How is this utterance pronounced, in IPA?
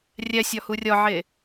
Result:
rʲæsʲɒ hurʲɒʕe

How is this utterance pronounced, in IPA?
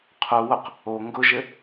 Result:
qʰuwʊq | o ŋɡʊʒɘ

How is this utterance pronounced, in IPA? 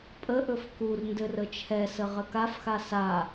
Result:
pʼəʔɵf kurndɘr ət͡ʃʰɛsə ʁəkafxa sa

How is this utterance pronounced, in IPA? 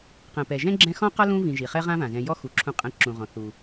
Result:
qɛ̃˩pɛ˩ʒɛ̃˦ ɡ͡ǁɛ̃˦xɔ̃˥qɔ˥ lũ˥vĩ˨ʒi˩χɛ˥ ʁã˥vã˩zɛ̃˨ jɔ˦xu˩ ǁʰũ˨qʼɛ̃˨ǁũ˩ ʁɔ̃˩ θu˩

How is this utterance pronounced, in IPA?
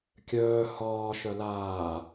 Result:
kʲœː hɒː ʃœlaː

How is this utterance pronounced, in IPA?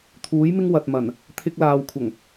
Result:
t̪ʰuː˨˥jmɪ˥ŋ wɐ˨t̚mɐ˨˩n | t̪ʰɪ˧k̚laː˨wkʷʰɐ˨˩ŋ

